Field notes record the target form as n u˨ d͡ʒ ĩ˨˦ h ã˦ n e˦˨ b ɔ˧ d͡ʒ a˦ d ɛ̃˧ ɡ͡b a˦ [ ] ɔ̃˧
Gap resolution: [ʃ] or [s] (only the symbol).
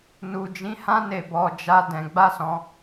s